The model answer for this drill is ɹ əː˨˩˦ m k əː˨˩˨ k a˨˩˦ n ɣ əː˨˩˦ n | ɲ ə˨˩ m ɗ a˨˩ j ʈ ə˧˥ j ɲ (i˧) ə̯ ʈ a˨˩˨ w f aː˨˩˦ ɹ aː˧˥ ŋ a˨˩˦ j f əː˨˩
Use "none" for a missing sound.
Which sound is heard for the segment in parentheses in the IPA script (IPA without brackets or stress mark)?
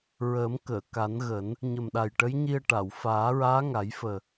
i˧